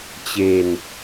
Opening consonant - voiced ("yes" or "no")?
no